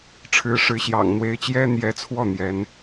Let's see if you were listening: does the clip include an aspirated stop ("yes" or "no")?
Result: yes